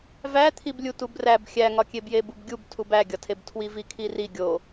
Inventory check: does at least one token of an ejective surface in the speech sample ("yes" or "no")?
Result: no